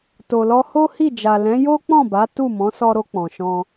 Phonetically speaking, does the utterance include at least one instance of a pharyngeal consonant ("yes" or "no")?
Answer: no